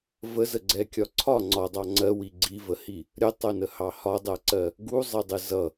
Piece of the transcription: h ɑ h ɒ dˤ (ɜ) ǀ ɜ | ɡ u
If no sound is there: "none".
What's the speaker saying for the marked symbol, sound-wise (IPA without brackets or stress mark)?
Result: ɜ